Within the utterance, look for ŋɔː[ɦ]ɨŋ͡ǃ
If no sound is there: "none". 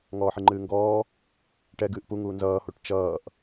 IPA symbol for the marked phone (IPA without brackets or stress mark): ħ